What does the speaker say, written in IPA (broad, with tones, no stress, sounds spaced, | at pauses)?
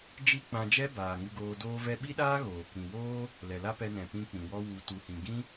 d͡ʒ i˦ k͡p ã˧ d͡ʒ ɛ˦ b aː˨ ŋ ɨ˧ ɡ oː˧ d oː˧ v ɛ˧ ɓ i˦ ɗ aː˦ ɣ oː˨ k ĩ˨ w oː˦ | l ɛ˨ l a˦ p ɛ˧ n ɛ̃˨ p ĩ˦ k͡p ĩ˨ w ɔ˦ w u˨ t u˨ h ĩ˨ ɡ ĩ˦